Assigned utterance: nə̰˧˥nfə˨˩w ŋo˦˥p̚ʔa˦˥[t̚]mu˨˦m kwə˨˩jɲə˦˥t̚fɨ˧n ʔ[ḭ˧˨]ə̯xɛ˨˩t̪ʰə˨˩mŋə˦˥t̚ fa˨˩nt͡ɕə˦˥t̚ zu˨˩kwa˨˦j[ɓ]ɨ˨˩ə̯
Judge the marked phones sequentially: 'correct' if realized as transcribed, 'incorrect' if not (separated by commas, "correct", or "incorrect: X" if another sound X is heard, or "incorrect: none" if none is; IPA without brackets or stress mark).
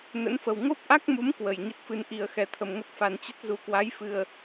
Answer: incorrect: k̚, incorrect: i˨˩, incorrect: f